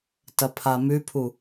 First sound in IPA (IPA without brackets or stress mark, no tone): t